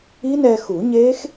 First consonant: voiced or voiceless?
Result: voiced